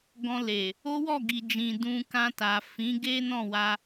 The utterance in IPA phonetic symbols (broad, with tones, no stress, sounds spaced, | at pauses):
ɡ ɔ̃˧ l e˨ | o˦ w ɔ˦˨ ɡ i˨ d͡ʒ ĩ˨ d ũ˧ k ã˧ t a˨ f ĩ˨˦ ɡ e˦ n ɔ̃˦˨ w a˧